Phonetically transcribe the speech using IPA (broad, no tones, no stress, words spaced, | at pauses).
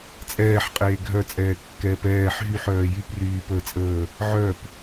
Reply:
t͡sʼɛːħ qʼeːɡʱœt͡sʼɛː kːɛːpɛːħ ɦyħœː jypryːpəːt͡sʼəː | ʕœp